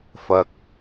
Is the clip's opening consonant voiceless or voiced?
voiceless